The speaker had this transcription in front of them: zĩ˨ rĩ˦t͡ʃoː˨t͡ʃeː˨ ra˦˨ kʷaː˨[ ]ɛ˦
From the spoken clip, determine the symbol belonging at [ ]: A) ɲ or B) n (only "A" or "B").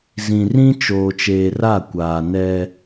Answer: B